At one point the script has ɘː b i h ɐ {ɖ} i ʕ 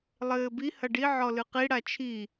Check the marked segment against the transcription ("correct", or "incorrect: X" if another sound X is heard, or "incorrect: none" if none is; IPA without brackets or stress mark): correct